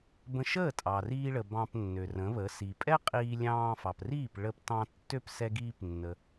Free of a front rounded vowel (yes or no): no